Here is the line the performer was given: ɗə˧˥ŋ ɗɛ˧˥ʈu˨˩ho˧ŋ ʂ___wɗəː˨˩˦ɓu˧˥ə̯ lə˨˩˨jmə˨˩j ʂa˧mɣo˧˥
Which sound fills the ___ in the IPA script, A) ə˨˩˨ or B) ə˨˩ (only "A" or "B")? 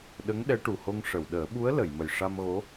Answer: A